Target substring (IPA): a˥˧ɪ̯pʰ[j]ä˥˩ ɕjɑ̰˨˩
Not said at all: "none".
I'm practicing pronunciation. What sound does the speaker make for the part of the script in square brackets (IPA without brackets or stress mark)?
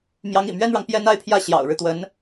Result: j